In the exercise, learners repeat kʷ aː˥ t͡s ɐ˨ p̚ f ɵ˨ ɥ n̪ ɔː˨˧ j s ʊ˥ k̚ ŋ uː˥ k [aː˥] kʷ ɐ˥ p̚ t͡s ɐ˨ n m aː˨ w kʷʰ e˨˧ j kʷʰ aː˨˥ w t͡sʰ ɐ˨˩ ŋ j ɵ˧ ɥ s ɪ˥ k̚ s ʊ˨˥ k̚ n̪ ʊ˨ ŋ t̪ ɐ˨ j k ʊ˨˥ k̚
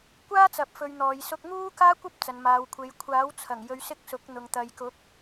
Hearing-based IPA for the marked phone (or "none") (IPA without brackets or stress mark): aː˥